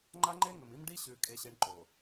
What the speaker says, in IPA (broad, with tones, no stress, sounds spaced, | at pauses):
ŋ͡ǃ a˦ ŋ͡ǃ e˦ ŋ ɵ˨ m i˦ m ɖ i˦ ɕ ʉ˨ kʼ e˦ ɕ e˦ ɳ ǃ o˨